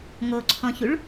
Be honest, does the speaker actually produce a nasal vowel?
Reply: yes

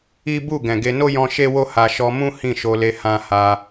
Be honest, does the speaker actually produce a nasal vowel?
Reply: yes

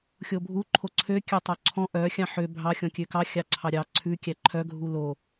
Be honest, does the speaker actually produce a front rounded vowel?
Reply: yes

